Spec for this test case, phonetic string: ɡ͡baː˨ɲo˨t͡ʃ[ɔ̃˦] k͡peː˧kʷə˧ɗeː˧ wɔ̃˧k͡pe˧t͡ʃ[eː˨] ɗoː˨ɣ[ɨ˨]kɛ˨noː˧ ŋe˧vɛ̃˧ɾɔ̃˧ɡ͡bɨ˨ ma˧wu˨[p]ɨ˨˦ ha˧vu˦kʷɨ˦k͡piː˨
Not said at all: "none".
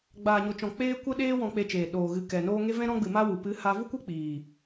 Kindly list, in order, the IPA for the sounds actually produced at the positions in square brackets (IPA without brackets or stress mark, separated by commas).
ɔ̃˨, eː˨, ɨ˨, p